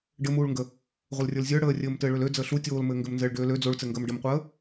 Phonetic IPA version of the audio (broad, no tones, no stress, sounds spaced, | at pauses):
ɖ ɘ m uː ɭ ŋ ɡ ə | ʁʷ ə l rʲ ə˞ l zʲ ə˞ ɽ əː rʲ ɘː m t ɘː ɭ ø l ø d͡z əː ɬ u tʲ oː l m ɘː ŋ ɡ ɘ m n z ɘː ɭ ɖ øː l ø d͡z o ɭ t͡s ɘ ŋ ɡ əː m ɖ ə m qʷ əː